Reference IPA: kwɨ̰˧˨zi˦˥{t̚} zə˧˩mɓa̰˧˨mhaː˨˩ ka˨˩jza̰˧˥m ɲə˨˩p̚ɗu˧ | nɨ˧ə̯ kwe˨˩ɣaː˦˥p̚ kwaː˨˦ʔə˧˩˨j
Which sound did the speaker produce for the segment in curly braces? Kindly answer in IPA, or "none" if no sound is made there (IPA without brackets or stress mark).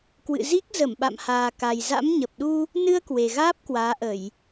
k̚